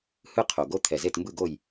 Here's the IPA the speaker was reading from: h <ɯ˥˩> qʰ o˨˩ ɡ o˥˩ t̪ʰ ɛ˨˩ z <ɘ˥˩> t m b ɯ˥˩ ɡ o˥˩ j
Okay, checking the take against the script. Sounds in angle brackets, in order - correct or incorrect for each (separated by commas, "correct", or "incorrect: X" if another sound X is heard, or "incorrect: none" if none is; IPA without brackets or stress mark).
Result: correct, incorrect: e˥˩